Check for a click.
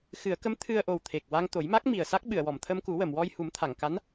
absent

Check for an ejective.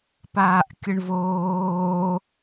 absent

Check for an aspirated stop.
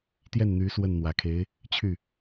present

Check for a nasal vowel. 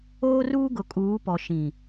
present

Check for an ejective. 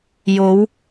absent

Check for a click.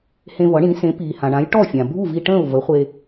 absent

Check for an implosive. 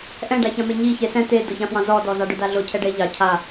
absent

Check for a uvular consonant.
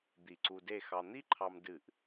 absent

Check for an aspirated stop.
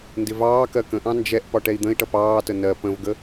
absent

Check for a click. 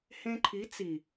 present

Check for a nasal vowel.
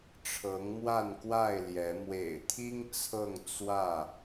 absent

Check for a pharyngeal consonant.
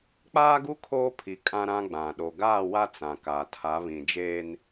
absent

